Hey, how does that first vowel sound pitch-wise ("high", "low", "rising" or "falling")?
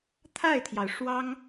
falling